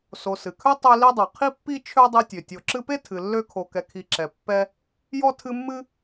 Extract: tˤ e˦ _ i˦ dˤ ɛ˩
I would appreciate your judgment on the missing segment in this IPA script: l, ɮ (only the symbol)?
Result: l